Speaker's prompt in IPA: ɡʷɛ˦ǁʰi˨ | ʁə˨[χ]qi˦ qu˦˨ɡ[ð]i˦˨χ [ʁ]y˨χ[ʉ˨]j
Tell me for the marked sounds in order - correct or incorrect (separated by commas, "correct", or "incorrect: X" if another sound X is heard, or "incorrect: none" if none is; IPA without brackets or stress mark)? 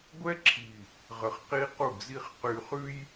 correct, incorrect: z, incorrect: q, incorrect: ʉ˦